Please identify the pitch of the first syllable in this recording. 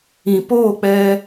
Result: low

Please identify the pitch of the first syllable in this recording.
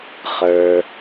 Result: low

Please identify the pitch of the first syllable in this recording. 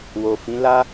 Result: low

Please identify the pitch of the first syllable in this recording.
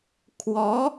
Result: rising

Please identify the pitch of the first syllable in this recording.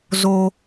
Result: low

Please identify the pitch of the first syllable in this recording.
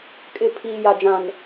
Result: low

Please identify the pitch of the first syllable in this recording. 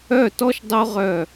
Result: falling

